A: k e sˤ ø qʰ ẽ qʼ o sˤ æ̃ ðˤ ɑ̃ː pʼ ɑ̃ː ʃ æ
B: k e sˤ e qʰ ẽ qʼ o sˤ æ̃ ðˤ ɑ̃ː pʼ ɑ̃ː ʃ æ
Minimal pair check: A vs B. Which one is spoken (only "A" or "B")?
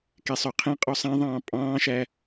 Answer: A